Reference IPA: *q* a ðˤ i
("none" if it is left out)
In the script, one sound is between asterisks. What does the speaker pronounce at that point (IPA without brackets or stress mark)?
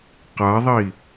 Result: q